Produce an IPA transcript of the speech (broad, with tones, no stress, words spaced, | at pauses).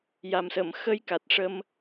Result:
ja˨˩msə˨˩˨mxə˧j ka˨˩t̚ʂə˧m